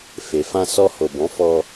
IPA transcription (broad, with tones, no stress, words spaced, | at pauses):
fe˨ fã˧sɔ˧ho˨bɔ̃˨˦ fɔ˧